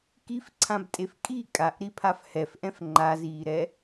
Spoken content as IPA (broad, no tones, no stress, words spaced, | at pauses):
kifǀʰãbtʼef kʼi kʼaʔɾipʰaf hɛfʔɛ̃f ŋ͡ǃaziːɾɛ